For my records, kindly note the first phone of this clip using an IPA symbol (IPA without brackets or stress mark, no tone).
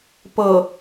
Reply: p